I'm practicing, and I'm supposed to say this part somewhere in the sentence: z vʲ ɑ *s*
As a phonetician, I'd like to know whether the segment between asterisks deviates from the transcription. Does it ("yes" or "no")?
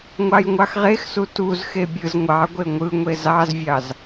yes